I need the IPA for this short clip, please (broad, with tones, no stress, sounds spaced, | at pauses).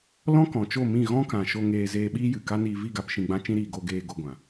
l ɔ̃˦ k ɔ̃˨ t͡ʃ o˦˨ m ĩ˦˨ ɣ ɔ̃˦ k ã˨ ʃ o˧ ŋ eː˧ z eː˧ ɓ iː˦ j ɨ˨ k a˦ n iː˧ v i˦˨ ɡ a˧ p ʃ ĩ˧ ɡ͡b ã˦ t͡ʃ ĩ˦ ɾ iː˧ ɡ o˧ ɡ eː˧ ɡ o˧ ɡʷ ã˨